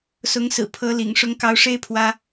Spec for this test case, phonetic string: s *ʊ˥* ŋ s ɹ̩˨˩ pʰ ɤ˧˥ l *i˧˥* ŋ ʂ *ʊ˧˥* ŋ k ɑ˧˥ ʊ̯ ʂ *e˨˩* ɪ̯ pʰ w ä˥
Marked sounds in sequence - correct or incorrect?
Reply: incorrect, incorrect, correct, incorrect

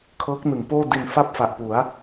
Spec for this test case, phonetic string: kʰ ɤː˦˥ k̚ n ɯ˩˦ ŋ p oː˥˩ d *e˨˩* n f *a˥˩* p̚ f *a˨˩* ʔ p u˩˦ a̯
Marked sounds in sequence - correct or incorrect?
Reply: incorrect, correct, correct

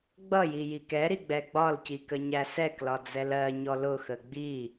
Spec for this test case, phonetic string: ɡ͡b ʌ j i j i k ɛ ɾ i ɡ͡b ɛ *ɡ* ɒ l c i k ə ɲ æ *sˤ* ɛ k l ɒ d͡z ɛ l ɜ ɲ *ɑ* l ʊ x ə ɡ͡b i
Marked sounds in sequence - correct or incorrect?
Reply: incorrect, incorrect, incorrect

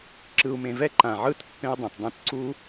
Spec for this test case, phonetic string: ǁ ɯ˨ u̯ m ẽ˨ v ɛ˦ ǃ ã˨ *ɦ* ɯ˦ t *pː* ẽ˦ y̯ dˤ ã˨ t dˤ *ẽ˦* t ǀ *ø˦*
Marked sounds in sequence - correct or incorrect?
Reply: incorrect, correct, correct, incorrect

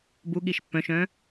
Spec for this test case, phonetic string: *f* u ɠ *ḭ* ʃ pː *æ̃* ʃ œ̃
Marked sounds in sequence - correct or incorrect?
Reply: incorrect, incorrect, incorrect

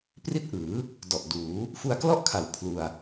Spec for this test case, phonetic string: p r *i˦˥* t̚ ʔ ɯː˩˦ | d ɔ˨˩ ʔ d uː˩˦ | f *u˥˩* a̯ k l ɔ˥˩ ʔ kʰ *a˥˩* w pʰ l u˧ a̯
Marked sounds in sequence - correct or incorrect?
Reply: incorrect, incorrect, incorrect

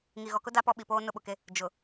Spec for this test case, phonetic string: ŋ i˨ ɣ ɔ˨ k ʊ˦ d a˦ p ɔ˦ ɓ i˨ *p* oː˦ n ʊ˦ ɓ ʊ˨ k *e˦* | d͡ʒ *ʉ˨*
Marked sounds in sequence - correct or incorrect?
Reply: correct, correct, incorrect

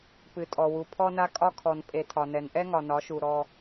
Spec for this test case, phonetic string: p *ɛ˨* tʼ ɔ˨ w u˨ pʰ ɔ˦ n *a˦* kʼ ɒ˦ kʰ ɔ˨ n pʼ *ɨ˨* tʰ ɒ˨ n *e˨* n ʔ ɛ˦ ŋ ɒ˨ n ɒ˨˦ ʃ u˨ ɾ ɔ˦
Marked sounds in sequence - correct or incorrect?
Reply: incorrect, correct, incorrect, incorrect

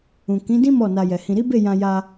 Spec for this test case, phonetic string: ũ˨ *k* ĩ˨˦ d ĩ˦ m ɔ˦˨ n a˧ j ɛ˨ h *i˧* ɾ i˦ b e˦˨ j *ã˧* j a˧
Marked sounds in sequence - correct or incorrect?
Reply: correct, incorrect, correct

